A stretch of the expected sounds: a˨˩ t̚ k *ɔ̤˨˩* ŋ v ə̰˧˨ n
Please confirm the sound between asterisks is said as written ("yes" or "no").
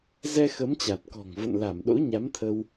yes